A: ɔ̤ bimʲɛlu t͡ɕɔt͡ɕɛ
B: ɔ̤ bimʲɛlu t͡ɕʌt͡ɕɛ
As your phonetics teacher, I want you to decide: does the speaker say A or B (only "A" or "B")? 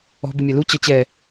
B